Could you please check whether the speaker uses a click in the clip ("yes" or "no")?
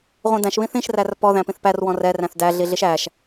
no